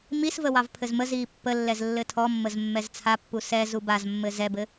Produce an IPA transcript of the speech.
m i s v ə w ɑ v pʰ ɘ z m ə z iː pː ə lː ɛ z lː ɘ tʰ ɔ mː ə z mː ɛ z t͡sʰ a pː u s ɛ z u b a z mː ɘ z ɛ b ɘ

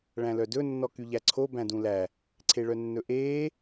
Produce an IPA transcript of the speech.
ɭ æ̃ l œ d ɵ nː ɔ k y ʎ æ ǀʰ o b æ̃ d ũ l æ | ǀʰ e ɭ œ nː ɵ ʔ eː

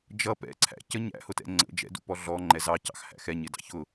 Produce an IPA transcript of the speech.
d͡ʒ ʌ p ɛ̰ ǀʰ æ̰ c ə ɲ æ̰ h ʊ t ɛ̰ ŋ͡ǀ ə̰ d͡ʒ ɛ̰ d ṵ p ɔ ɮ ɔ ŋ͡ǃ ɛ z ɑ c ɑ̰ x h æ̰ x ɛ ɲ ɪ d ɑ̰ ç ʊ

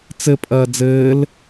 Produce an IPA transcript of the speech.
t͡s ɘ pʼ ɐː d͡z ɘː l

